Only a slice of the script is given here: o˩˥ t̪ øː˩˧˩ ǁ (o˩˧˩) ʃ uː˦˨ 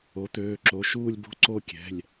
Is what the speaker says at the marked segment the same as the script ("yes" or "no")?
yes